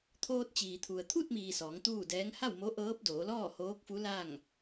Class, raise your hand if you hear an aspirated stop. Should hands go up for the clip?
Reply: yes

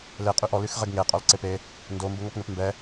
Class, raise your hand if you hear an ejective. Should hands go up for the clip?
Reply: yes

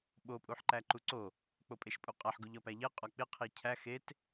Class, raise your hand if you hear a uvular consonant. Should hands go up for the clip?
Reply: yes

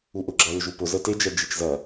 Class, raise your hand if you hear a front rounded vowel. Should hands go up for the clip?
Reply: no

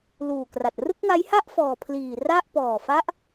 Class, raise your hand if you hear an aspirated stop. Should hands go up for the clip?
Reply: yes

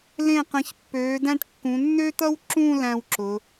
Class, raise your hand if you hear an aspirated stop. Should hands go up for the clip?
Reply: no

